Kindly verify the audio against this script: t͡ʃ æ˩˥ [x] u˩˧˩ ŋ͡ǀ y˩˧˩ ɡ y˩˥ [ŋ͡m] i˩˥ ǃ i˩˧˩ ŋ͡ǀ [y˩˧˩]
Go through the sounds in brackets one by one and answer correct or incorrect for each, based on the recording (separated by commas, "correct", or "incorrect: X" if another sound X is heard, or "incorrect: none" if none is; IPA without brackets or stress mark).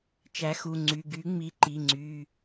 correct, correct, correct